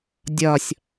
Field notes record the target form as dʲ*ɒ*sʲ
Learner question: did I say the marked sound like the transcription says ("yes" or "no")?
yes